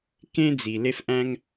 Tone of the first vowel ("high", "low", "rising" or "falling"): high